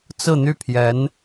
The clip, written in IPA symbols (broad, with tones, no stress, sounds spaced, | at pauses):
t͡s ɹ̩˥˧ n̪ y˥˩ pʰ j ɛ˧˥ n